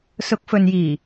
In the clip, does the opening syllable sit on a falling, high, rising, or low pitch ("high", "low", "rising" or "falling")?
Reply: rising